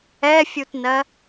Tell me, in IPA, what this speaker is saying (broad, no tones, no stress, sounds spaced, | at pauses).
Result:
ɛ fʲ u t n ɜ